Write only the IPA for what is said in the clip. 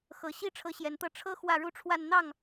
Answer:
xɤ˨˩ɕi˥ ʈ͡ʂʰɤ˧˥ɕjɛ˨˩nt̪ɤ˥˩ ʈ͡ʂʰɤ˥ xwä˥˩ɻu˥ʈ͡ʂʰwa˥˧n n̪ɑ˥˩ŋ

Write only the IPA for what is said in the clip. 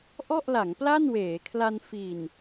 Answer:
ʔɔ˥˩ʔla˩˦ŋ pla˥˩nweː˩˦kʰla˧n fi˨˩n

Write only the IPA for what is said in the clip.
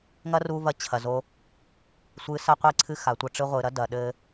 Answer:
ŋɐ˦ru˧vɐ˧ t͡ɕʰɐ˨zo˦ | sʷɨ˨˦sɐ˧qʷi˧ǀʰɨ˧ xa˨tʷɐ˧ʈ͡ʂɨ˧ ʁʷɨ˨ɾɐ˦ dɐ˨ɗɘ˧

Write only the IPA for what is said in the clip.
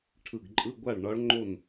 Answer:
ʈʰɯ˧˩ɡǃʼɯ˧˥˧ɡʷa˥˨ɭ ɳɒ˧˥ɭ ŋ͡ǃo˥˨n

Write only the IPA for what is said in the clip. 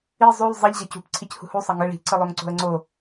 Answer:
i zˤulˠ zˤiʎ ʑʌcṳp ǀʰichṳhu sˤʌŋɯ ɭi̤ ǀɯlˠoŋǀo̤ə̯ŋ͡ǀo

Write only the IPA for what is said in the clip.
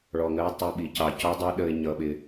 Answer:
ɭɔ˨ŋɜ˦ʊ̯ tˤu˨ɓi˨cɑ˨ cɔ˦ dˤʌ˦ ɗə˦ɪ̯ɲʌ˦ɓɪ˦

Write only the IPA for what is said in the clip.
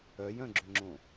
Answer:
œjœ̃ɡ͡ǁʏŋ͡ǁõ

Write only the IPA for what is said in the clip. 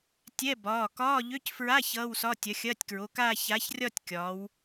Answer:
tʲɛ˧˥˧bɒː˩˧˩ kɒː˧˥˧ʎø˧˥˧cfɹa˧˥˧ çʌː˧˥˧wsɒ˧˥˧ tʲɐ˨˥xʲɐː˧˥˧tʲkɹo˩˧˩kaː˥˧ ça˨˥çrʲɒ˥˧tʲkʲɒː˩˧w

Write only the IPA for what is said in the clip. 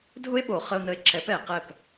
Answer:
dʱʊ˦e̯ɓo˨ χə˧o̯nə˧e̯ǁɛ˨˦p ɛ˨ qɛ˦˨p

